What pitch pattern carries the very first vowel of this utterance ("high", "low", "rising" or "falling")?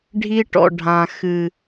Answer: high